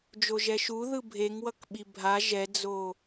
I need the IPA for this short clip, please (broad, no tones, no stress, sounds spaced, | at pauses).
d͡ʒ o ʒ ɛ ʃ u ð ɯ bʱ e ŋ w ʌ k ɓ i bʱ a ʒ ɛ d͡z o